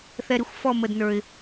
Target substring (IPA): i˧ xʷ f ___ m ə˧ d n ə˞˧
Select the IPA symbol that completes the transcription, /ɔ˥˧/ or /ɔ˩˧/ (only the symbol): ɔ˥˧